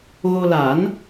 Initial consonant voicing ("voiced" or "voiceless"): voiced